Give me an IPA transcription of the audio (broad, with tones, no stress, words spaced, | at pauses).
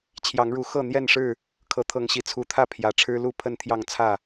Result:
t͡ɕʰjɑ˨˦ŋɻu˨˦ xɤ˥˨ n̪jɛ˥˨nʂɻ̩˥˨ | kʰɤ˨˦t̪ʰɤ˨˦ŋɕi˨˩ t͡sʰu˨˦t̪ʰä˥˨ pʰjä˨˩ʈ͡ʂʰɻ̩˦lu˥˨ pʰə˥˨nt̪ʰjɑ˥˨ŋt͡sʰä˥˨